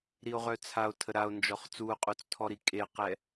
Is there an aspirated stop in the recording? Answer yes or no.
yes